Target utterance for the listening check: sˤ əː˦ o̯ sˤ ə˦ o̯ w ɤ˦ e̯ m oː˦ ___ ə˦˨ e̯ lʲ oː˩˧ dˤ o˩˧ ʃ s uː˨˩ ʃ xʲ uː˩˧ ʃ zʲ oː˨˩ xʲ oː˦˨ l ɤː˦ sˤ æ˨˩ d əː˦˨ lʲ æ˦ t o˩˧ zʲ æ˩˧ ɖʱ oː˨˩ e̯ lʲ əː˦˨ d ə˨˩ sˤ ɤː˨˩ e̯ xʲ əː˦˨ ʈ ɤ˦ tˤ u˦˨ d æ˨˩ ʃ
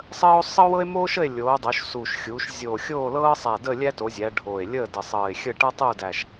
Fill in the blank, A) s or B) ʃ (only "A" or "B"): B